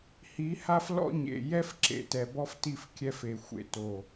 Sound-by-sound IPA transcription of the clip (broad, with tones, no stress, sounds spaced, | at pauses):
h i˨˦ h a˦ f l ɔ̰˦ ɲ ḛ˨ j ɛ˦ f ǁ ḛ˨ t ɛ˨ b ɔ˦ f t i˦˨ f kʲ ɛ˦ f e˨ xʷ ḛ˨ t o˨